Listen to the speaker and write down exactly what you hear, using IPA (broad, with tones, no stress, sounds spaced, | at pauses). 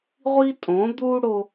ʁʷ i˦ tʼ õ˨˦ d̪ u˦ ɽ o˦